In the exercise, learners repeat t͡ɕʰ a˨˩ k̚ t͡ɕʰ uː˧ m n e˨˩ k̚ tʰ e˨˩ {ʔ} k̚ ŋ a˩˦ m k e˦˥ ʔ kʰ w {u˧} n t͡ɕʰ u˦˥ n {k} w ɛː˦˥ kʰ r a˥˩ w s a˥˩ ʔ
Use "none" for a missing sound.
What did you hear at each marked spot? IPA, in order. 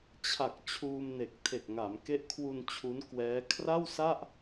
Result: none, u˧, k

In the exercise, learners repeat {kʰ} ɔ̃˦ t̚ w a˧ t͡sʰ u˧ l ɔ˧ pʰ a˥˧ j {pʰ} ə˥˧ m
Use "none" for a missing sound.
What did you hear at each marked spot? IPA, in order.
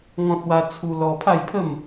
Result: ŋ, pʰ

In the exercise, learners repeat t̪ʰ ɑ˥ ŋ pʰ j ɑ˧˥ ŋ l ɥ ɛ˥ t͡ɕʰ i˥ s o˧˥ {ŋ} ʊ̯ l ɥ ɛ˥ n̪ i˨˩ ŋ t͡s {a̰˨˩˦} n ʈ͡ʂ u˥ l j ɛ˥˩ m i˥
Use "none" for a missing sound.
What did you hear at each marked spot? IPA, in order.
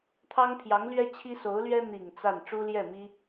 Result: none, a˥˩

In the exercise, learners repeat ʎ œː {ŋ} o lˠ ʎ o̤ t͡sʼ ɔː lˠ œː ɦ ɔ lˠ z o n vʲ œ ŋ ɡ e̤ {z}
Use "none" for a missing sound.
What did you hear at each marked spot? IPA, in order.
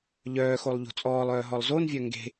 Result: x, none

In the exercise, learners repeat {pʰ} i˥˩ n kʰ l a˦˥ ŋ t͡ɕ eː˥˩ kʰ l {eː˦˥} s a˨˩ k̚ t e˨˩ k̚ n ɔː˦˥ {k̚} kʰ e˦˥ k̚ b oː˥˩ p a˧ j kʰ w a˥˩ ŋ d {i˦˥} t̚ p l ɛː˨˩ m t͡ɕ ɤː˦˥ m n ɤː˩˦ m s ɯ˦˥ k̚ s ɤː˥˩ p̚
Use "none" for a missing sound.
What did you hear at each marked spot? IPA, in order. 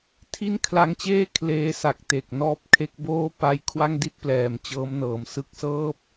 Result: tʰ, eː˦˥, p̚, i˥˩

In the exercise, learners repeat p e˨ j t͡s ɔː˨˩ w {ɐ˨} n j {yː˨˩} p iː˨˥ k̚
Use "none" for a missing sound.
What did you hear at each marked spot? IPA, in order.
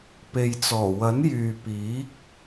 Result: ɐ˨˥, yː˨

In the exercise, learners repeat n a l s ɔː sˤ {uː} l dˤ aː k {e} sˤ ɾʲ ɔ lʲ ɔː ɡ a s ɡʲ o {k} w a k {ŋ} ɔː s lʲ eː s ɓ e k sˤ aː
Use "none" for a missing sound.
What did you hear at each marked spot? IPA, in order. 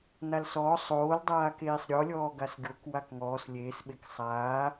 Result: oː, eː, k, ŋ

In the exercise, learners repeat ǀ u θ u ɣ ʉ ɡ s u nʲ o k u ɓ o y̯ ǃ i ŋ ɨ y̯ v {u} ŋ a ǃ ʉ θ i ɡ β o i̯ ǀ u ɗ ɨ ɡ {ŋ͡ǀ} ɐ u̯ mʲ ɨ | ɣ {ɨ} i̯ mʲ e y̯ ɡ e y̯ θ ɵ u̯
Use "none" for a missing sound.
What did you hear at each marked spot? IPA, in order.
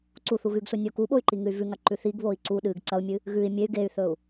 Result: ʉ, ǀ, ʉ

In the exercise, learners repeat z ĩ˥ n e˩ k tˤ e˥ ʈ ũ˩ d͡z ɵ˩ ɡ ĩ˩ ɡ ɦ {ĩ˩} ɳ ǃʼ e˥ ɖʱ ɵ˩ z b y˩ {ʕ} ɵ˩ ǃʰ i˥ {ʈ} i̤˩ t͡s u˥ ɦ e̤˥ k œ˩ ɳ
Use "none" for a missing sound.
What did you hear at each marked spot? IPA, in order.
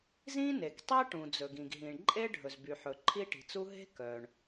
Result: ĩ˩, ħ, ʈ

